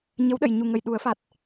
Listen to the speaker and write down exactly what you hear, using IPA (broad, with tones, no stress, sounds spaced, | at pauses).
ɲ ə˧˥ w ɗ ə˨˩˨ j ɲ u˨˩ ŋ ə˨˩ j ɗ u˨˩˦ ə̯ f a˨˩ t̚